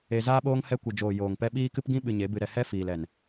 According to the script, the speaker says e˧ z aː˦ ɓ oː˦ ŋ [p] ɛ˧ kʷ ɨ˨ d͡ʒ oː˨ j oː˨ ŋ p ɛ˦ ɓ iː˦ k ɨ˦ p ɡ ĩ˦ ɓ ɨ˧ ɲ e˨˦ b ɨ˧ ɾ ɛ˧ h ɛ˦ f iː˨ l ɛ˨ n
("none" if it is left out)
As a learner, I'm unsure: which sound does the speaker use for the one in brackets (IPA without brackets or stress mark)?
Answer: h